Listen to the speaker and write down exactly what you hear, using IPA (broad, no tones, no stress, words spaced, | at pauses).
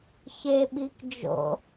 çeɓik d͡ʒo̰